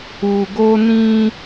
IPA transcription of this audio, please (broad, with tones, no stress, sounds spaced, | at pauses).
u˧ ɡ o˦ n ĩ˦